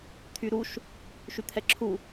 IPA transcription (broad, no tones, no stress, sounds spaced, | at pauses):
t̪ʰ y ɾ u ʃ | ʃ y t̪ʰ ɛ ǁʰ u